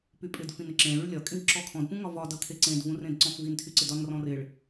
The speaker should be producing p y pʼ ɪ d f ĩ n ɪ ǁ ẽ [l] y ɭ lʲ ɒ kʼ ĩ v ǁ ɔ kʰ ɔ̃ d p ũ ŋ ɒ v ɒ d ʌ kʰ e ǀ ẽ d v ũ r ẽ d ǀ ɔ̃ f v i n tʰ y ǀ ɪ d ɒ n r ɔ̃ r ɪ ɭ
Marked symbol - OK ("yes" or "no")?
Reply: no